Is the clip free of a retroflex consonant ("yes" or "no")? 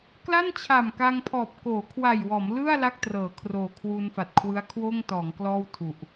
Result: yes